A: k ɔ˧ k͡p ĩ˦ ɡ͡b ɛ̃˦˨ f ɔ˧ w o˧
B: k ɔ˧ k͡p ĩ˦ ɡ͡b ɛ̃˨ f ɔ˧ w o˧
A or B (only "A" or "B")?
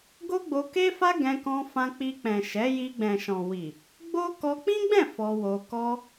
A